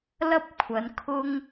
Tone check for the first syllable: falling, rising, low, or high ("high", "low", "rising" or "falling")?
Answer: high